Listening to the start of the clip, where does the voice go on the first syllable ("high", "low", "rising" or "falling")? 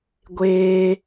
high